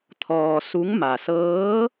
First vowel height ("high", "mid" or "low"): mid